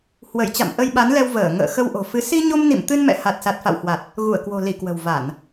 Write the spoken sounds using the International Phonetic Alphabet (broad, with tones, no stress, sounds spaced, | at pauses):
h w ə˧˩ j t͡ɕ a̰˧˨ m ʔ ə˧ j ɓ a˨˦ n l ɛ˧ w v əː˧˩ ŋ ə̰ː˧˨ x ə˧ w ʔ o̤˨˩ f ɨ˨˦ s i˧ ɲ o˧ m n ḭ˧˨ m t̪ ɨ˧ n m ɛ̰˧˨ h a˨˩ t̚ s a˨˩ t̚ f a̰˧˨ w h w a˨˩ t̚ | ɣ u˧˩ ə̯ k w o̤˨˩ l i˧˩ k w ə̤˨˩ w v a˧˩˨ n